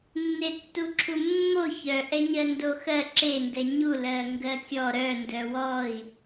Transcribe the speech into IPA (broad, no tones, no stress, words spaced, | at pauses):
nːetːuǁʰumːo çœʔɛɲɜ ndoxɜ ǁendɛ ɲulɜ ŋɡɜkʲɔ ɾœ ndœwɔi̯